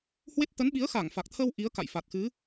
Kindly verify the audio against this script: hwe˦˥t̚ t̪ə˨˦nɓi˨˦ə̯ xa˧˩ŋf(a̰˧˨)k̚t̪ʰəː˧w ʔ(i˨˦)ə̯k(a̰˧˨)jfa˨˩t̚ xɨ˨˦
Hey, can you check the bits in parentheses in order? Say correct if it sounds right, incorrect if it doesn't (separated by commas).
incorrect, correct, correct